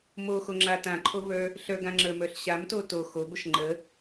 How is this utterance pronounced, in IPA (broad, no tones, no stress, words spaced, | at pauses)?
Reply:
moxoŋ͡ǁa tãǃʰovə˞ | ɬə˞ɡãŋ͡ǁə˞mə˞ɬ ɕamto to xoɡʷəʃ ŋ͡ǃə